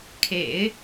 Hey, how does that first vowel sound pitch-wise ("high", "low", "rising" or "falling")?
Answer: low